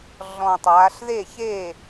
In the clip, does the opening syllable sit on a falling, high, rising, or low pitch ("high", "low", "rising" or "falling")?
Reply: low